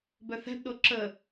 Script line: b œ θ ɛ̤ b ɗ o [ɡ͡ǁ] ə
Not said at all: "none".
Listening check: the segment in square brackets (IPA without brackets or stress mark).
ǁ